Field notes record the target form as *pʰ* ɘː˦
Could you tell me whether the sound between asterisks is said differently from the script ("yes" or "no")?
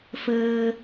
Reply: yes